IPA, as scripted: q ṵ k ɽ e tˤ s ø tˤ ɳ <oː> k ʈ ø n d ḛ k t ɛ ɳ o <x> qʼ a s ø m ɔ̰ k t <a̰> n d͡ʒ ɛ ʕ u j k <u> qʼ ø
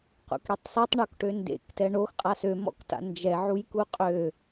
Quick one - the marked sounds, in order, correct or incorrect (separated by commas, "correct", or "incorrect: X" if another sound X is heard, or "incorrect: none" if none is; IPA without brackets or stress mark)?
incorrect: o, correct, correct, correct